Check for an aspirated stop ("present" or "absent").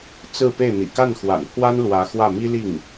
present